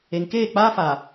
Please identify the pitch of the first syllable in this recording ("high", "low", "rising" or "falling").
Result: low